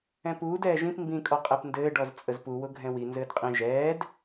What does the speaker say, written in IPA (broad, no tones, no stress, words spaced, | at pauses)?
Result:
ɛ̃puːd ɛːʒĩp mbĩkʼɔqʼɛp ndɘːɖɔz t͡sʼəzpuwʊ ɡʱɛ̃wi nzɘːdqʼĩ ʒɛːd